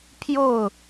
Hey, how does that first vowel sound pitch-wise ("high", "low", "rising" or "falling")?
falling